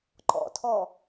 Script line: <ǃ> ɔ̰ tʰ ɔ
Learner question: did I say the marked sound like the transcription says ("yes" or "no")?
yes